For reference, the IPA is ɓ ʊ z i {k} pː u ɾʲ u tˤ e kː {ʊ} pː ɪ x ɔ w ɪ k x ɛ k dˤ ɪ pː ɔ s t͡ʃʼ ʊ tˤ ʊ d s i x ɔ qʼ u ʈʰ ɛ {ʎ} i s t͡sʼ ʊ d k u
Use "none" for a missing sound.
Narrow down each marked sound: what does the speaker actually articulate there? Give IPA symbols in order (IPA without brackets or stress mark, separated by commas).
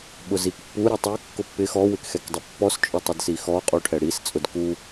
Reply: k, ʊ, ɽ